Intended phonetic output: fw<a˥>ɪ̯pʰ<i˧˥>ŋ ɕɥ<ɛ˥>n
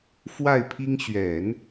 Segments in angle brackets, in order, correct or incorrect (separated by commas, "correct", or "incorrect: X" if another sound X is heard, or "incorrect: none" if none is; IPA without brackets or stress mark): incorrect: a˥˩, incorrect: i˥, incorrect: ɛ˨˩˦